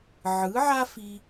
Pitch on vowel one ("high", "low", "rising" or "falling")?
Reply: rising